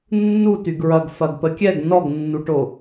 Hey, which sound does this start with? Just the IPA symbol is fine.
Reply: nː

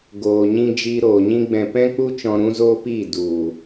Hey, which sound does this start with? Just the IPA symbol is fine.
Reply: ɡ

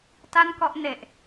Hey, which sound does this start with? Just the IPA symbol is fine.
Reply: t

